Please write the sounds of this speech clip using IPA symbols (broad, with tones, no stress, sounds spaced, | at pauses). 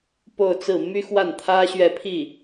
p o˥˧ ʊ̯ t͡s ɹ̩˥˩ m y˥ x w a˥˩ n t̪ʰ ä˥ ɕ ɥ ɛ˥˧ pʰ i˥˩